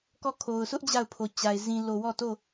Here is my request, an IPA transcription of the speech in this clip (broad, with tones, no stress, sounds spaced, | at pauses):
k ɔ˦˨ kʰ o˨ ʊ̯ sʰ ʊ˦ ʔ d͡ʑ a˦˨ ʊ̯ pʰ o˨ t͡ɕ a˨ ɪ̯ z ĩ˨ l o˨ w ɔ˦˨ t o˦˨